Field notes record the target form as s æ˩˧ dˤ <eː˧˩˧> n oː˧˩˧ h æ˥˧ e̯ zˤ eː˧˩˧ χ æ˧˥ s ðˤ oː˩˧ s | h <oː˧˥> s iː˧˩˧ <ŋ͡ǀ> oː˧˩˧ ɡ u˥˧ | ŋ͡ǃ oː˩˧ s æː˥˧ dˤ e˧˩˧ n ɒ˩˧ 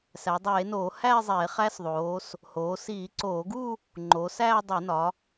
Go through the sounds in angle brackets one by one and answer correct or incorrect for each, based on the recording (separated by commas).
correct, incorrect, incorrect